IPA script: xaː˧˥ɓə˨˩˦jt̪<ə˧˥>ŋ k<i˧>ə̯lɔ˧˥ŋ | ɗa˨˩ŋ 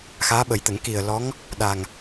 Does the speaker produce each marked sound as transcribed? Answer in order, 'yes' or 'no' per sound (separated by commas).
no, no